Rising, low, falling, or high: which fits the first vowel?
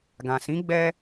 low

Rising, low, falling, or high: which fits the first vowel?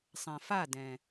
low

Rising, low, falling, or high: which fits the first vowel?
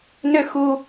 high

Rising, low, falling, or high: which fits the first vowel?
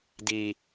low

